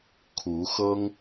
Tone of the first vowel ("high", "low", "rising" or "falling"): rising